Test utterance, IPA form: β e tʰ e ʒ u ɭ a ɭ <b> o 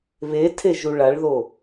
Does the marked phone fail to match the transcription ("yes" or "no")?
yes